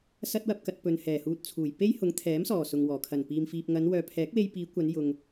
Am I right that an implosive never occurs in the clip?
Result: yes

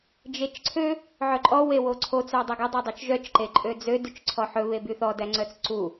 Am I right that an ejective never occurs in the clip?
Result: no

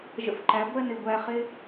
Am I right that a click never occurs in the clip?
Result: no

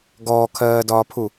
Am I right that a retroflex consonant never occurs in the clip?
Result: yes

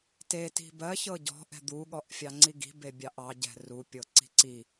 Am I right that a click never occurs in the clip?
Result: no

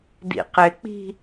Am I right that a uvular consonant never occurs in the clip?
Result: no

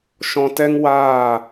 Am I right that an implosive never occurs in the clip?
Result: yes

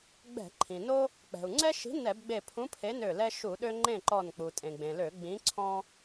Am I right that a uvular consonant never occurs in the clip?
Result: yes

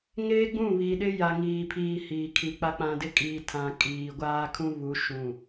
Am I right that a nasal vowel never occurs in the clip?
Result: no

